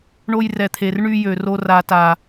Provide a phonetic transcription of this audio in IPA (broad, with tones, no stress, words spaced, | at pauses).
ɳo˧jrɛ˨t̪ʰe˨rɳy˧ jø˨ro˧ ra˨ta˨